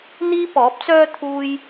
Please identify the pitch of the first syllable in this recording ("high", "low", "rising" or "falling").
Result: high